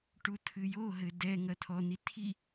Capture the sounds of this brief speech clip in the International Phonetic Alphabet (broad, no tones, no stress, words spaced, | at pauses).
ʈut̪ʰɨjoɦɘ dɛ ŋɐt̪ʰɔn̪i t̪ʰi